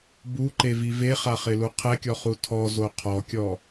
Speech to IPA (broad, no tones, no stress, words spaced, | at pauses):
buǃevi veχaχɪlu qʰɛkʲɔχu tʰɔzo qʰɔkʲɔ